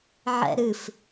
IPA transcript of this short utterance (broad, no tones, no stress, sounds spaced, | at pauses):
ʕ ɛ̰ ɾ ɨ f